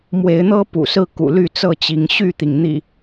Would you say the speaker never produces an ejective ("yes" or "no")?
yes